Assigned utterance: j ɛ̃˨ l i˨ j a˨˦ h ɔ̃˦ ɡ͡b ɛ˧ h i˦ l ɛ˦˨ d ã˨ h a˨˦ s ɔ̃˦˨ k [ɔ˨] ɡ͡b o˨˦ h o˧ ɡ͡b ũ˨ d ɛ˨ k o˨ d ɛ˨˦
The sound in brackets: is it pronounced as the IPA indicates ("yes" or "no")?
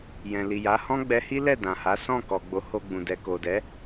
yes